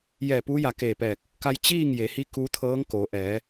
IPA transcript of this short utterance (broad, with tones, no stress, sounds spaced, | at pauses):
j ɛː˧˩ p uː˧˥ j a˧˩ k eː˧˩ p ɛː˧˩ k̚ | k a˧ j t͡ɕ iː˥˨ ŋ j e˩˧ h i˧ k u˧˥ t̪ʰ ɤː˧˥ ŋ k oː˩˧ ʔ ɛː˩˧